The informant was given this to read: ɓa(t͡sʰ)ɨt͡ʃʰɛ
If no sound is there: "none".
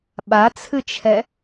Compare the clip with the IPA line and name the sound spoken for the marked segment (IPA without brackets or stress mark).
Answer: t͡sʰ